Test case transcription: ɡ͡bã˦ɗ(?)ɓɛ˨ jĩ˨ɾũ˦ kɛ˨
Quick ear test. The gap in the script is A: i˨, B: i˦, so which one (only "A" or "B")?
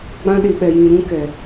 A